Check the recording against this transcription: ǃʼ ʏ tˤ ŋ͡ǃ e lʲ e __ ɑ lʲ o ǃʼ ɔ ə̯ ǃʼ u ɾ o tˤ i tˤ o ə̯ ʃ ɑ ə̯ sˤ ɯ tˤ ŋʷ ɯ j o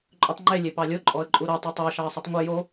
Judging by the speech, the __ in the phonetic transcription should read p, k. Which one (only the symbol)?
p